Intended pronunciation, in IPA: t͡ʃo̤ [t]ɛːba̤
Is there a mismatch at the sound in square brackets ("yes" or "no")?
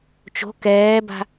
yes